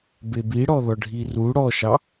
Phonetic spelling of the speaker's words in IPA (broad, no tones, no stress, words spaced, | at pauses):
bebiɽɔðɔ ɖʱiru ɽɔʃɑ